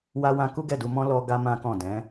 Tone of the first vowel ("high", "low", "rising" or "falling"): high